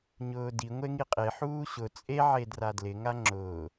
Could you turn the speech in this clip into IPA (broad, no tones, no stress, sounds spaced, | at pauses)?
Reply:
ɲ ʊː d i ŋʷ e ŋ i qʼ e ħ uː ɕ ʊ t͡sʼ e ʕ e d r a d l ɪ ŋ a ŋ͡ǁ ʊː